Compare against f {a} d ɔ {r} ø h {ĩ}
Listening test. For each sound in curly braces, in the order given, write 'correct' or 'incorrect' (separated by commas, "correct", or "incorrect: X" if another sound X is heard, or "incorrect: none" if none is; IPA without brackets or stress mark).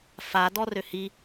correct, correct, incorrect: i